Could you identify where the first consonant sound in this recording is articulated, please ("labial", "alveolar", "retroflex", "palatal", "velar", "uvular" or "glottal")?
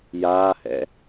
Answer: palatal